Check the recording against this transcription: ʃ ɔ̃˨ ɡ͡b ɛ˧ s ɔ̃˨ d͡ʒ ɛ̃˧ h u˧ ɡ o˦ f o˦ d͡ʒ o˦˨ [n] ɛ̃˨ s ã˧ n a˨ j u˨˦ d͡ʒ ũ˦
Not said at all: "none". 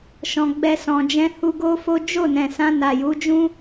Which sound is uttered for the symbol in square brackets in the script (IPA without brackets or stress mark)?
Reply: n